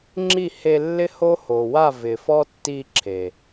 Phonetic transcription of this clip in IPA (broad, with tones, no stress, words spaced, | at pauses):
ŋ͡ǁi˦˨he˧lːɪ˦ ho˦ho˨ wa˦˨vɪ˨fɔ˦tːi˧ ǁʰe˨